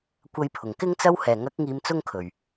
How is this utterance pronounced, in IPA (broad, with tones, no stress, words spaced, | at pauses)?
kʷɐ˧jpʰʊ˨˩ŋkɪ˥ŋ t͡sɐ˥w hɛː˨˩ŋɐ˨˥k̚ ŋiː˧mt͡sʊ˥ŋkʰɵ˨˩ɥ